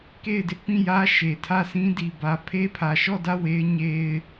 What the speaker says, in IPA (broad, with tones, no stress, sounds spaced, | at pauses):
k e˦˨ ɪ̯ d ɪ˦ ʔ p ĩ˦˨ j ä˦ ʃ e˨ tʰ ä˦˨ s ĩ˦ d i˨ b ä˨ pʰ e˦ pʰ ä˨ ʃ ɔ˦˨ d ä˦˨ w e˦ ɪ̯ ɲ e˦ ɪ̯